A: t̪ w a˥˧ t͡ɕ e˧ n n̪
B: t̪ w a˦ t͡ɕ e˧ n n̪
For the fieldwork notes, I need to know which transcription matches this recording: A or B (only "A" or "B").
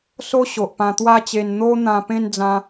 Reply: B